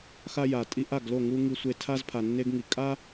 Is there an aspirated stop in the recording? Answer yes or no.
yes